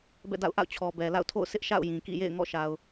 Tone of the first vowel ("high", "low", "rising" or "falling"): falling